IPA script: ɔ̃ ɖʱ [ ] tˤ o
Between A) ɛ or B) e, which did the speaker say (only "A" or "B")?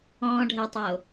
A